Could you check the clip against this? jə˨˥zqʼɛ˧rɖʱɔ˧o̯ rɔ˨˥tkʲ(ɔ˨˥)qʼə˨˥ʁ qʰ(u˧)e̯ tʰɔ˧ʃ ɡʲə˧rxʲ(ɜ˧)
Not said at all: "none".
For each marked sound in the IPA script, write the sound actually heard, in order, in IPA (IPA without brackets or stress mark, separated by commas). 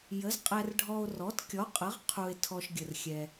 ɔ˨˥, u˧, ɛ˧